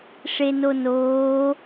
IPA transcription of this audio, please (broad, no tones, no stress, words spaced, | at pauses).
ʂenonoː